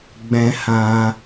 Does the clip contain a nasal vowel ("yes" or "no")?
yes